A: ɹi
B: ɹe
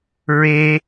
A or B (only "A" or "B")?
B